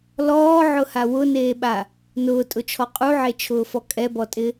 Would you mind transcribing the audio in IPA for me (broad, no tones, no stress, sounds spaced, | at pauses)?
l ɔː ʕ ʊ h a w ʊ n eː ɓ a | n ʊː tʼ ʊ t͡ʃʰ ɔ qʼ u ʕ e t͡ʃʰ ʊː f ɔ kʼ ɛ b ɔ tʼ ɪ